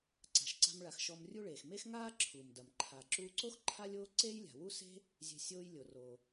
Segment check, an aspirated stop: present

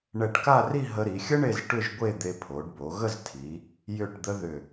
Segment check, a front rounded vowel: present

